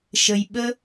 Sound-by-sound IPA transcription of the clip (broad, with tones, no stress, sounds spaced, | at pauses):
ʃ ə˩ j ɓ ə˧